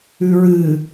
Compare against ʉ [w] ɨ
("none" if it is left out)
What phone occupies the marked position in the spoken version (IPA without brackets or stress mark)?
ɹ